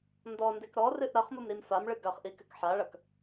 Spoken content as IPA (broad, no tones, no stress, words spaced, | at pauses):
ndɔndek ɾɔrɨʔ ɾɐχmumɾim famɭɨ ɡɐχʔikɘk ħaɭɐk